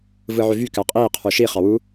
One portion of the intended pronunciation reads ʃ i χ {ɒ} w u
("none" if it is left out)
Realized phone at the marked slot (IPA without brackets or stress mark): ɑ